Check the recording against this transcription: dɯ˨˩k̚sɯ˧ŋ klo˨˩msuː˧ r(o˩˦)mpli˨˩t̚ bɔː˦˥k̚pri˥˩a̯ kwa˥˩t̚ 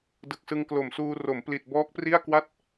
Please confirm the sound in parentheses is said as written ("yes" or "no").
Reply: yes